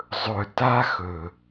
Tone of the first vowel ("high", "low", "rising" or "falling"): low